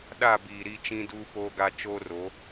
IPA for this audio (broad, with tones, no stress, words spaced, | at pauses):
ɗa˦˨biː˨ɾi˦˨t͡ʃĩ˦ duː˦poː˦ɡa˦ t͡ʃoː˦ro˨˦